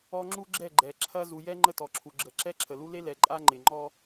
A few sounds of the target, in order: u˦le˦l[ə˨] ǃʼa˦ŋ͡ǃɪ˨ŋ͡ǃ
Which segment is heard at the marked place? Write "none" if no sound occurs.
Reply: ɛ˨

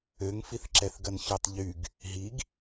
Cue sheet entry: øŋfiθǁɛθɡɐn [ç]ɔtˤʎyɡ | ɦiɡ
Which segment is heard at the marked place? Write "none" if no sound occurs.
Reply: ç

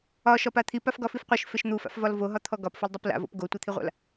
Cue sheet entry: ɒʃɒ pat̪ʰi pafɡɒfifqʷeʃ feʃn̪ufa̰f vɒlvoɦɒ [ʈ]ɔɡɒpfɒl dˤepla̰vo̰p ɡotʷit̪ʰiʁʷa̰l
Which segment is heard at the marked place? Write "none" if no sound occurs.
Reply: t̪ʰ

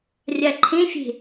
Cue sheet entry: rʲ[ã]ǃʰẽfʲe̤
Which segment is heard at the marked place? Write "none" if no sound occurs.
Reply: a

